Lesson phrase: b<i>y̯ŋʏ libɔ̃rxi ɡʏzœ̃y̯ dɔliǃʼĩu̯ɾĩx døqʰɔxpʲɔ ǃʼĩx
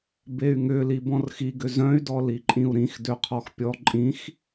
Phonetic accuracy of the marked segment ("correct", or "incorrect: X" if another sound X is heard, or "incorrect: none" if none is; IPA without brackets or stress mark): incorrect: e